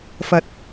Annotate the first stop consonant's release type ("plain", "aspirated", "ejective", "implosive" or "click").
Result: plain